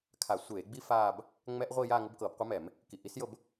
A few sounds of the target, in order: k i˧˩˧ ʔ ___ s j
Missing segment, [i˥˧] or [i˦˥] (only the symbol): i˦˥